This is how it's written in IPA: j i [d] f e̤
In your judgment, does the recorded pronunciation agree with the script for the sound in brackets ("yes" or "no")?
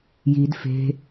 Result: yes